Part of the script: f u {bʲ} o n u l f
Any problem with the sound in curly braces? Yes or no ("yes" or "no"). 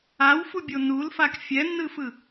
no